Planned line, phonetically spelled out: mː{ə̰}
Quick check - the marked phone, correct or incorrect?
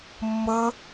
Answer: incorrect